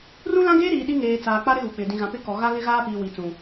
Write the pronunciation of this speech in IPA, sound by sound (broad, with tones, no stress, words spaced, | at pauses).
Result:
rũ˦lã˦ɡeː˦ɾiː˨ ɗi˦ŋeː˨ t͡saː˨k͡pa˦ ɾɪ˦ɣu˨k͡pɪ˨ dĩ˨ɣã˨ pɪ˦ kɔ˨ɣa˦ ɣɪ˦ɣaː˦piː˨ wi˨t͡sũ˨